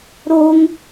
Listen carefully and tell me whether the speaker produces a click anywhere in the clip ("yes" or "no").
no